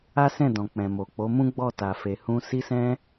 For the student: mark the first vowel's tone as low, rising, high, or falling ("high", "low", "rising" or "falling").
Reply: high